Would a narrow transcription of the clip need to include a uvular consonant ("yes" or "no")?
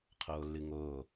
yes